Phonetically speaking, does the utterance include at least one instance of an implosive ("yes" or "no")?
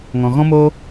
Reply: no